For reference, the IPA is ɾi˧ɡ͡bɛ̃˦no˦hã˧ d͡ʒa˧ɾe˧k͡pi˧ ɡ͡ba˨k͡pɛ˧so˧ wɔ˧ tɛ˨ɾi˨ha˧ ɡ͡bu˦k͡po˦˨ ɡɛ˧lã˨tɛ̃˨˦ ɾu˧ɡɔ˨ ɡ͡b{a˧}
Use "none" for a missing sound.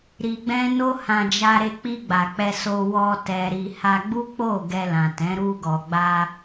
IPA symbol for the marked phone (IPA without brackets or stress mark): a˧